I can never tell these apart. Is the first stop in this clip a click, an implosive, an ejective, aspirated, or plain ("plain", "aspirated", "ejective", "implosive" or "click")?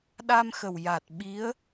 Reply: implosive